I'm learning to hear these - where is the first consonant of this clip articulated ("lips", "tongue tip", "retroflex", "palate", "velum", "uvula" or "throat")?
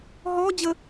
throat